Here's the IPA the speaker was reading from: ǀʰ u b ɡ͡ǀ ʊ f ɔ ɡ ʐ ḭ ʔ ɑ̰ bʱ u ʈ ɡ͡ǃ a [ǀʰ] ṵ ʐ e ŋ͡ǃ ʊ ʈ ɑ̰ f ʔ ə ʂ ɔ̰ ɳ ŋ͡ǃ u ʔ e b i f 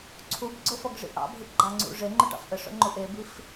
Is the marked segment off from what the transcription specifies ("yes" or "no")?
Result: yes